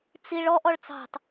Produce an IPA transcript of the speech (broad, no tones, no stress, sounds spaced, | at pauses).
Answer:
t͡s i ɭ ɔ ʔ ɔ ɭ t͡s ɑ̤ t